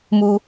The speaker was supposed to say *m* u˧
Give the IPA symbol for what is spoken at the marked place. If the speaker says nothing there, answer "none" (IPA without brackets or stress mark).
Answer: m